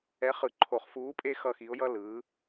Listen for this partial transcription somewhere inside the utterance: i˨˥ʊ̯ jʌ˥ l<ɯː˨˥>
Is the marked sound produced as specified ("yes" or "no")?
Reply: yes